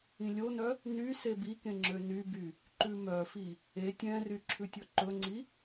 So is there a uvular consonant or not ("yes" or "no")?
no